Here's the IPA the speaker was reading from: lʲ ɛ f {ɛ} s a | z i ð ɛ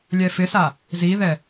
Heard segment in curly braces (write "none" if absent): ɪ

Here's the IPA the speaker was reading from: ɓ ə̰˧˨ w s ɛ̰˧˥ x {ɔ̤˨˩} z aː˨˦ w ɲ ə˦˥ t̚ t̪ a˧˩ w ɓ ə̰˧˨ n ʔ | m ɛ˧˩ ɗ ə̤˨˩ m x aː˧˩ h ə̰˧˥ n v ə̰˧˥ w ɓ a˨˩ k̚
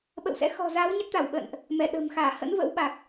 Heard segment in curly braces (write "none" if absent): ɔ̤˨˩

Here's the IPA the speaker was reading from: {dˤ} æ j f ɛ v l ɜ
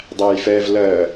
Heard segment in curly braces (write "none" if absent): dˤ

